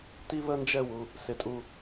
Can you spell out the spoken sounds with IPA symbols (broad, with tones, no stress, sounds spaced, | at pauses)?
t i˦ β ə˦ n d͡ʒ ɛ˦˨ w u˨ | s ɪ˨ tʼ u˨